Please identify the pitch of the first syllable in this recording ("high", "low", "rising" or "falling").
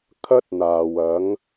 high